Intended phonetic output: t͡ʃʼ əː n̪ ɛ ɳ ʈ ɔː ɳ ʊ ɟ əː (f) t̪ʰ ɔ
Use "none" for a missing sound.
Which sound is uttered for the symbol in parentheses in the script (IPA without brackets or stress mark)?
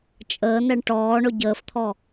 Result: f